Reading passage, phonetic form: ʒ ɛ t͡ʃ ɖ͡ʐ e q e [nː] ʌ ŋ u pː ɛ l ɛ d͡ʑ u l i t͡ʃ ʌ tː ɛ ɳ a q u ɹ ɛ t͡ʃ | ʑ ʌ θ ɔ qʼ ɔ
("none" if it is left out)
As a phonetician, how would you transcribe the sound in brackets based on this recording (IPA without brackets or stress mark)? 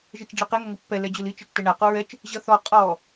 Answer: ŋ